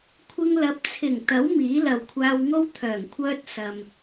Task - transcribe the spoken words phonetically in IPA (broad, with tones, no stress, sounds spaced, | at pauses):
kʷʰ ɪ˧ ŋ l ɐ˨˥ p̚ t͡sʰ ɪ˨˩ ŋ t̪ ɐ˨˥ w m iː˨˥ l ɐ˨ w kʷʰ aː˧ w ŋ o˥ w t̪ʰ œː˨˩ ŋ kʷʰ œː˧ t̚ s ɐ˨ m